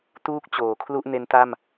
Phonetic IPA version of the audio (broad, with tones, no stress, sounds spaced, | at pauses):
t uː˥˩ k̚ t͡ɕ oː˩˦ kʰ l u˥˩ ʔ n e˦˥ n t a˥˩ m